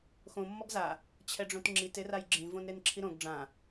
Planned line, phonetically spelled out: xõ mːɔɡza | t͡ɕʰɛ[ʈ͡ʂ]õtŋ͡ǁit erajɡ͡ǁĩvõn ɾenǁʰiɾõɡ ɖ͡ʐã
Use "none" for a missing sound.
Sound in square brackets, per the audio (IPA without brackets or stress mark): ɖ͡ʐ